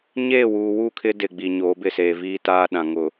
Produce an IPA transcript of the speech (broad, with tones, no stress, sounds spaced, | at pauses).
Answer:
ɲ eː˦˨ w uː˨ w u˦˨ kʰ ɪ˦ d ɪ˨ ɡ͡b i˨ ɲ oː˨˦ b ɪ˦˨ s eː˨ v iː˦ t aː˦ ɗ ã˨ ŋ ʊ˨